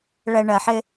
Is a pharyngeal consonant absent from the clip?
no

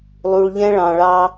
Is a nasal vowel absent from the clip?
no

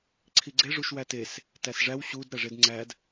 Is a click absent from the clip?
no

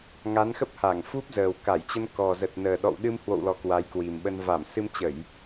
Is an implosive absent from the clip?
no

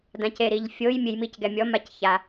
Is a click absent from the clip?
yes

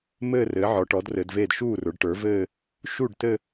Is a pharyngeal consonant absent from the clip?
no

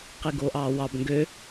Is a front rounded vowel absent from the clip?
no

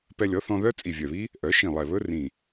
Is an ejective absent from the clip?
no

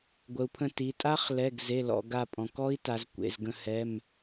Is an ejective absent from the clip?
no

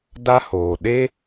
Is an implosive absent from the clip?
no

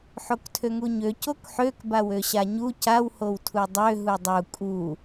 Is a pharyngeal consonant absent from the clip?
no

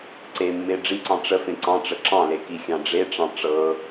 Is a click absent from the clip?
no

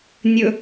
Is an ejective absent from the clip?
yes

